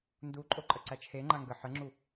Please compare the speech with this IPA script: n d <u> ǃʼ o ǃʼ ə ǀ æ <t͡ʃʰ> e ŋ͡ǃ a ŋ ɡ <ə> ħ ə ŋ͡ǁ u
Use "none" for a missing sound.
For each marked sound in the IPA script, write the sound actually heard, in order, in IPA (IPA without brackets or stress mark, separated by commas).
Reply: u, t͡ʃʰ, ə